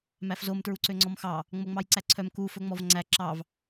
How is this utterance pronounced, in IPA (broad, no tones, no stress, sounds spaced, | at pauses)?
m æ f z o m t ɹ u ǀ ø ŋ͡ǀ ɔ m x ɑ | ŋ͡m o ŋ͡m ɑ j ǀ æ ǀʰ œ m k u f ɵ ŋ͡m ɔ v ŋ͡ǀ æ ǁ ɑ v